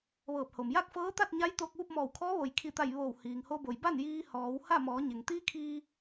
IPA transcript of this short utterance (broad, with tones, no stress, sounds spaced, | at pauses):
ʋ ɤː˧˩ p̚ h o˩ m j a˥˨ k̚ f ɤː˧˥ t̪ a˥˨ t̚ ɲ a˧˥ j t̪ oː˧ k̚ ʋ u˥˨ p̚ m ɔː˧˩ w kʰ ɔː˧˥ ʋ o˩ j kʰ i˧˩ t̪ a˧˩ j ʋ oː˧˩ w h iː˩ ŋ h o˧ b o˩ j b a˥˨ n j iː˧ h ɔː˩˧ w h a˥˨ m ɔː˩˧ ɲ e˩ ŋ t̪ iː˧˥ kʰ iː˧